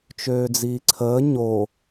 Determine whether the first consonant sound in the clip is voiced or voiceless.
voiceless